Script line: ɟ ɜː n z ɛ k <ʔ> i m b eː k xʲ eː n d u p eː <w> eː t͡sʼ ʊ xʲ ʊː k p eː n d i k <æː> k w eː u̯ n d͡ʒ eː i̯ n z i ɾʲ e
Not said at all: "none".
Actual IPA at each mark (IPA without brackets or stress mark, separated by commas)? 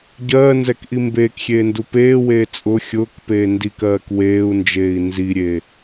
ʔ, w, ɜː